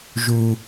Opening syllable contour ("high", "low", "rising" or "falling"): low